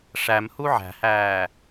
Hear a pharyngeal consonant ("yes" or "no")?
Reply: yes